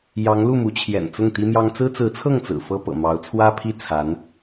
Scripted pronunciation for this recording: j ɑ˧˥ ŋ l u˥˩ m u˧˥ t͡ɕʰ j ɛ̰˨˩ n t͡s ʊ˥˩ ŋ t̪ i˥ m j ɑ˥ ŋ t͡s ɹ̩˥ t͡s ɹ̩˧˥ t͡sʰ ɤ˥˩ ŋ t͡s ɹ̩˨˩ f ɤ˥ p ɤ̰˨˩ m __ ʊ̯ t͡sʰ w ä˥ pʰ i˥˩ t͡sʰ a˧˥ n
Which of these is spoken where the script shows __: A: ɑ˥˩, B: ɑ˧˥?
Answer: B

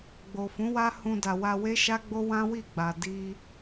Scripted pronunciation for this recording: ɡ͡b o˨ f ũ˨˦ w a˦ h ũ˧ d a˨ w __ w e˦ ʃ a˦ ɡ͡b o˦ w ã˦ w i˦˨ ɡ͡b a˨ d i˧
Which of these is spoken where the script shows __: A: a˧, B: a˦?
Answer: A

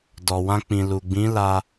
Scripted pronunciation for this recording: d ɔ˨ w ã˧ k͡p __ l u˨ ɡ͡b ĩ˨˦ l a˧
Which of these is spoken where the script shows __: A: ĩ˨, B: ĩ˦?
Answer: A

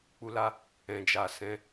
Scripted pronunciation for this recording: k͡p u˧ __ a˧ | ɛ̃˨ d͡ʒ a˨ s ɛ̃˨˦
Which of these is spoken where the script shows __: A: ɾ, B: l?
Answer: B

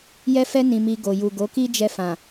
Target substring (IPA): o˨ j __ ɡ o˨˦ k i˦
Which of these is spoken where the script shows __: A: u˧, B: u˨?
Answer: B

